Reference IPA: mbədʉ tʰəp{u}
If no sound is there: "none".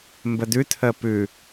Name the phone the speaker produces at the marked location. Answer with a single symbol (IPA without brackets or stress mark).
ʉ